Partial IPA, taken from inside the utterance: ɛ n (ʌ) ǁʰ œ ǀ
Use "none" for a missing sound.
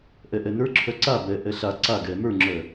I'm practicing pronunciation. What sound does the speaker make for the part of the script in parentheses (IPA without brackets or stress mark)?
ə˞